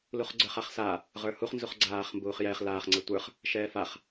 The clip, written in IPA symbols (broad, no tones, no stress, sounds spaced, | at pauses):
l u χ ɡ͡ǀ ə˞ χ a χ s a | ʁ ə˞ h u χ n z u χ ɡ͡ǀ aː χ m b uː χ j ɛː χ l aː χ ŋ͡ǀ ɛ tʷ ə˞ χ | ʃ ɛː f a χ